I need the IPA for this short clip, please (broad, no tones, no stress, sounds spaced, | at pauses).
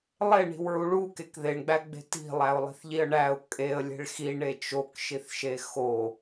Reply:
lˠ e ɳ i̤ w ɹ u ɭ u k e k ð e ɳ ɡ͡b æ ɡ͡b e̤ t i̤ lˠ æ ʊ̯ lˠ i̤ θ ʎ i ə̯ ɳ æ ʊ̯ kʼ e ə̯ lʲ e̤ ɭ x i ɳ e t͡ʃ o k ʃ i θ ʃ e x o